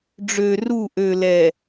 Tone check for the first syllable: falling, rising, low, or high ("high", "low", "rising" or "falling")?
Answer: low